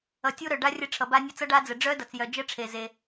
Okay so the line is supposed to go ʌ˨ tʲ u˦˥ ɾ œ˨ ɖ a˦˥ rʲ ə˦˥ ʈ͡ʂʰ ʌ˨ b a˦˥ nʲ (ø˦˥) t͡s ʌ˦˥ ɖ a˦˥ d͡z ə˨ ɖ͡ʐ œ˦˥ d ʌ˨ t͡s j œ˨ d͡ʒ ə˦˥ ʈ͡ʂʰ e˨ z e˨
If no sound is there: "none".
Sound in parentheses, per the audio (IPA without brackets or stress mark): ə˦˥